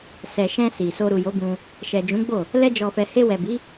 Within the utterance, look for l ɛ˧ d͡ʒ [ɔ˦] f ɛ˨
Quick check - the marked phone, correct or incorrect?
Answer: incorrect: ɔ˨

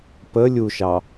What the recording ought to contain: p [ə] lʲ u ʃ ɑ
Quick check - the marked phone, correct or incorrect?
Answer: correct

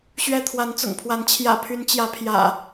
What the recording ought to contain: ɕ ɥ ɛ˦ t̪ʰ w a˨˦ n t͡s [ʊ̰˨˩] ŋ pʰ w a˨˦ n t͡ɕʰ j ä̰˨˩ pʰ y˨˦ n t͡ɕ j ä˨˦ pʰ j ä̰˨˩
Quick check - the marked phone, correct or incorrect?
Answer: correct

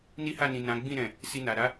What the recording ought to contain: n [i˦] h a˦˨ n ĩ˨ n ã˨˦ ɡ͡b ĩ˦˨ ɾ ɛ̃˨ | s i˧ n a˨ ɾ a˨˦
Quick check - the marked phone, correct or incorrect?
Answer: correct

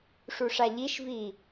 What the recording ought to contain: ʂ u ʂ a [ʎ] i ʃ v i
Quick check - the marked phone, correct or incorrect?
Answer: correct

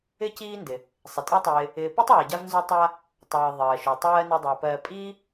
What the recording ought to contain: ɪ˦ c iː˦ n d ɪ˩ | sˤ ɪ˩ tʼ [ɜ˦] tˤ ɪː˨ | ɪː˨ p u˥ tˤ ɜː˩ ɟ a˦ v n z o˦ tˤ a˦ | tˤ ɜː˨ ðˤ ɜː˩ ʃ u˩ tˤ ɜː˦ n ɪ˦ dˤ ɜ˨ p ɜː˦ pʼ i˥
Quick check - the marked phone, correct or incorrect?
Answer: correct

